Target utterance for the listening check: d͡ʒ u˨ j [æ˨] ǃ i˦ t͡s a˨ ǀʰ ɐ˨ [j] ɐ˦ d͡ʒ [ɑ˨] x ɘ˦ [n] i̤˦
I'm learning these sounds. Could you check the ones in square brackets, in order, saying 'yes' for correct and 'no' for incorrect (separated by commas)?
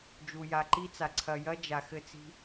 no, yes, no, no